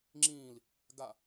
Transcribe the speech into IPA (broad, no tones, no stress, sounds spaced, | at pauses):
ŋ͡ǁ ĩː l | ɡ a